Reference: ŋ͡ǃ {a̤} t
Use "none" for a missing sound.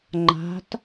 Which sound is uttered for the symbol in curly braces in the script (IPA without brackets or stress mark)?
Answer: a̤